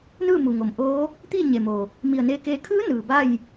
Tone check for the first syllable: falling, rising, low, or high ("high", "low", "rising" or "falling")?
falling